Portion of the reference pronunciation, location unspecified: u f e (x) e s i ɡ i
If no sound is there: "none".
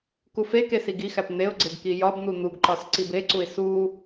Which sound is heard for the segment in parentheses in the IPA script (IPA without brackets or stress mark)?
k